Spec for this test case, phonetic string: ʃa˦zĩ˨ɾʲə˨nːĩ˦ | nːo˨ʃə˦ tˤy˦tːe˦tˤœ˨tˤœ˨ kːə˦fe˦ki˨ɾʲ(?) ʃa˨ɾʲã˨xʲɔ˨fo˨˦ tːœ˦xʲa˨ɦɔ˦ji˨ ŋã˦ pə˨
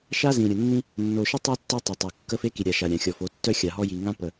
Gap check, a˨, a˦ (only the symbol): a˨